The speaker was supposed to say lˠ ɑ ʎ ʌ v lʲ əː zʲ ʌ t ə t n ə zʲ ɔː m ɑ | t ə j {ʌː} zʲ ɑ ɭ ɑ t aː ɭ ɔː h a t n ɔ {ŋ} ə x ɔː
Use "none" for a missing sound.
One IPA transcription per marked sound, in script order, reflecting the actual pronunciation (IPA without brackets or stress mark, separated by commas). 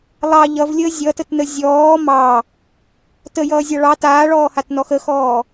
ʌː, x